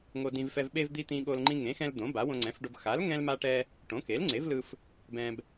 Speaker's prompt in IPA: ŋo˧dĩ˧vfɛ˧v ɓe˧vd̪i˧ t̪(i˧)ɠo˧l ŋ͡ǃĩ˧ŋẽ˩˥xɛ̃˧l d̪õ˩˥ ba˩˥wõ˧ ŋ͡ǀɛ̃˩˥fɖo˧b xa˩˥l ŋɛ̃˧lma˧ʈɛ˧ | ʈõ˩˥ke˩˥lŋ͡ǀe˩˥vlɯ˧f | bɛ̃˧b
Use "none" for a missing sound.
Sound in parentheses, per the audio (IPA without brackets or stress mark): ĩ˧